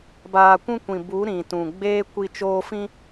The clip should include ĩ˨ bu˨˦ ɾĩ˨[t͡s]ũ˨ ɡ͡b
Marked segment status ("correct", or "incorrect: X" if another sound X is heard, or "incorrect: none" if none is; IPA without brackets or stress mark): incorrect: t